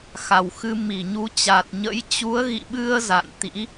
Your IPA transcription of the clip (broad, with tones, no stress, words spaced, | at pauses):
xa˧˩wxɨ˧ mi˧˩ɲu˨˦t͡ɕa˨˩t̚ ɲə̰˧˥j t͡ɕu˨˦ə̯ɣḭ˧˨ɓɨ˧ə̯ za̰˧˨nt̪ḭ˧˥